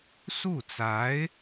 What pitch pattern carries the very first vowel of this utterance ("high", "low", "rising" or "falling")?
falling